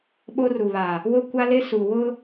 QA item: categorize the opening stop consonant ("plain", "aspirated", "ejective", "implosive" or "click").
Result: implosive